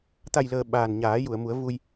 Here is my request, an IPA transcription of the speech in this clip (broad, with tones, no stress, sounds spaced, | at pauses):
t̪ a˨˩ j l əː˨˩ ɓ aː˨˩ n ɲ aː˨˩˦ j u˨˩˨ ə̯ m u˨˩˦ ə̯ v u˧ j